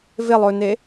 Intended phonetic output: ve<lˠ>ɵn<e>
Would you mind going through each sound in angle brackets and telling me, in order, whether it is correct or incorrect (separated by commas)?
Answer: correct, correct